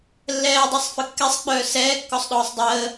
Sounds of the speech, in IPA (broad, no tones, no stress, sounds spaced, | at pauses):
lː ɛː dˤ ɛ sˤ f ə kː ɛ sˤ k͡p œː s ɛː kː ɔ sˤ ɗ ɔː sˤ dˤ əː